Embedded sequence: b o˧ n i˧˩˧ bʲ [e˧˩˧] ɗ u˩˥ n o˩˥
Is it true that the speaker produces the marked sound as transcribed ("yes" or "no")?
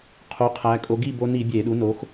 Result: yes